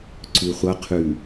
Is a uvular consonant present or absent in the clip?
present